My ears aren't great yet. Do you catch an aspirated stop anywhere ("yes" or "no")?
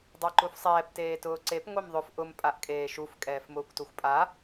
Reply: no